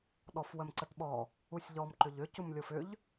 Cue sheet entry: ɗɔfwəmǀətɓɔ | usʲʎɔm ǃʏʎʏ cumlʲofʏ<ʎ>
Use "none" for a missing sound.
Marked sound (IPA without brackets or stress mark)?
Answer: ʎ